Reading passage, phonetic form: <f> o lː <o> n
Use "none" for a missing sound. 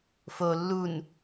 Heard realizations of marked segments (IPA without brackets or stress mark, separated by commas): f, u